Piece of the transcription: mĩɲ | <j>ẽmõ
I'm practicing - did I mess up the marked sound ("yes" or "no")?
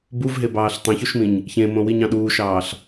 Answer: yes